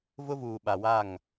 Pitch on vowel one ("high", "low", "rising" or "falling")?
high